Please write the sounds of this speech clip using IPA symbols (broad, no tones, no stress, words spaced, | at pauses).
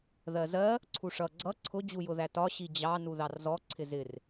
ðɜzɜ | ǀʰuʂʌ ɡ͡ǀʌ ǀʰʊ d͡ʑujʊðætɒ ɕid͡ʑɑ nuðɑrzɔ ǀʰɪzɪr